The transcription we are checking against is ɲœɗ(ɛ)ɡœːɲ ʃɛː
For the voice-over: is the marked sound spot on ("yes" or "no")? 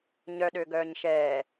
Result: no